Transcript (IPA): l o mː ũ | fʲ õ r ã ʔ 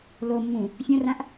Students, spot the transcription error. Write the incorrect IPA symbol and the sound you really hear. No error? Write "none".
none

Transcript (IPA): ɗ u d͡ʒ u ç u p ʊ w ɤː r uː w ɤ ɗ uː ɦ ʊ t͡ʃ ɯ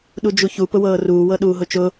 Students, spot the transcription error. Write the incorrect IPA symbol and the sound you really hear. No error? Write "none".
ɯ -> ʊ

